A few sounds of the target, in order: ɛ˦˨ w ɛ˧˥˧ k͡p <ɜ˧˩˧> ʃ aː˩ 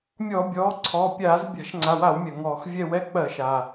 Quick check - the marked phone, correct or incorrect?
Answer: correct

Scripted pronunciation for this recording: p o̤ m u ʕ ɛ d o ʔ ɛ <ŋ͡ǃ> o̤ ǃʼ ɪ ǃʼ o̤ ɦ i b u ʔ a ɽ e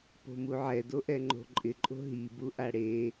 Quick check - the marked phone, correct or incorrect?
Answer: correct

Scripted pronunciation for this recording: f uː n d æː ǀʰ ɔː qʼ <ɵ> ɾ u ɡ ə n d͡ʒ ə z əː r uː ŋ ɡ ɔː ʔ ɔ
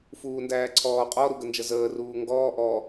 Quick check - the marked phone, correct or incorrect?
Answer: incorrect: ɔ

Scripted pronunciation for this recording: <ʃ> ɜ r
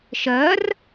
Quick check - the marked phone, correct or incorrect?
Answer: correct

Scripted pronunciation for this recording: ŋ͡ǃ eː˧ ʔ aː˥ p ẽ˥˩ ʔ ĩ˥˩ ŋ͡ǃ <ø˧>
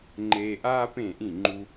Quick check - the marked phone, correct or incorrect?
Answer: incorrect: u˧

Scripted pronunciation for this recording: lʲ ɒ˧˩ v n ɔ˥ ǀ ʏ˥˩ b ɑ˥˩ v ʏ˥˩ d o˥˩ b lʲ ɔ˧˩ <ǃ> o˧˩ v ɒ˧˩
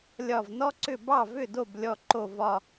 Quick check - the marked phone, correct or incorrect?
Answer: correct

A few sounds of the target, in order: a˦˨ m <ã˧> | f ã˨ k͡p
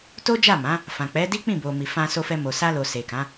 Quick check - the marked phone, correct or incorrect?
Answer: incorrect: ã˨˦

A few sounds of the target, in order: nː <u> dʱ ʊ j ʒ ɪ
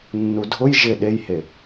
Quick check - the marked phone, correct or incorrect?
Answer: correct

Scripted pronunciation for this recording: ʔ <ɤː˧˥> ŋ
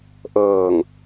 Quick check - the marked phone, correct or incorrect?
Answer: incorrect: ɤː˧˩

